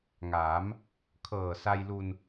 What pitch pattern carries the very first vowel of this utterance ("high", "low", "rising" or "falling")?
rising